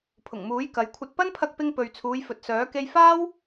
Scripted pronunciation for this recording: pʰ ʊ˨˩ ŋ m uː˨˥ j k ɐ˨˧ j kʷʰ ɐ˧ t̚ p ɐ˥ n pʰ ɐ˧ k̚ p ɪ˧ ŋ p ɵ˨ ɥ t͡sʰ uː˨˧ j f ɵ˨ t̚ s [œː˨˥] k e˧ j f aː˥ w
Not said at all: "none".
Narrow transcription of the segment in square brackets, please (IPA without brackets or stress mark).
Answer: œː˨˥